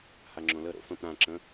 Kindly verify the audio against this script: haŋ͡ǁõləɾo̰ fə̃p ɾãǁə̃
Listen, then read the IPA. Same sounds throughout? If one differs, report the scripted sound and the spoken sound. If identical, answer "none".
none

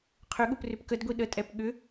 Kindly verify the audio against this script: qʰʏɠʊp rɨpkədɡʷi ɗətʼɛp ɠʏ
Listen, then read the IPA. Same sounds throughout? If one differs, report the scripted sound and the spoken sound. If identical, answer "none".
ɨ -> ʏ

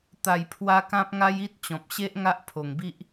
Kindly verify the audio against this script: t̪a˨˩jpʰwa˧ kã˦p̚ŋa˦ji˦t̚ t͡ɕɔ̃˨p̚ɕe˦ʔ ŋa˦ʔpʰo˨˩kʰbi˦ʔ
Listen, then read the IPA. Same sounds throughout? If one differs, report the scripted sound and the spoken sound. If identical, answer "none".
kʰ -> ŋ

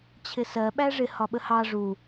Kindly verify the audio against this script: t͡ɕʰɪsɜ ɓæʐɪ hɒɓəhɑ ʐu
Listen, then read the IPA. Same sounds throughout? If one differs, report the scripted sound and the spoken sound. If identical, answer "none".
none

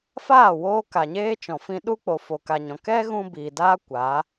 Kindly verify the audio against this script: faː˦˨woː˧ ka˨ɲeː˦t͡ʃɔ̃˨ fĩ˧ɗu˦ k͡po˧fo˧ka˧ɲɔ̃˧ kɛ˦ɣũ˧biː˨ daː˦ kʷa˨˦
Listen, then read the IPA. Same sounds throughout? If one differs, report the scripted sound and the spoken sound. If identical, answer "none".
none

